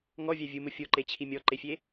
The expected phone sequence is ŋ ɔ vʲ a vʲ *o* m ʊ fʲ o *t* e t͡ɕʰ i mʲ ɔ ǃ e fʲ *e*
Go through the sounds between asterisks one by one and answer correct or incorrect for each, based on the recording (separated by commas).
incorrect, incorrect, correct